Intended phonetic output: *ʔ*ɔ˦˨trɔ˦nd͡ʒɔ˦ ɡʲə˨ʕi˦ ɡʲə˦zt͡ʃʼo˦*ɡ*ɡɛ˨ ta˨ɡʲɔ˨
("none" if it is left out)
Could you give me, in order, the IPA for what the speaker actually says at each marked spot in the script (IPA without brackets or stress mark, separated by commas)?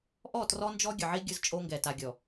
ʔ, ŋ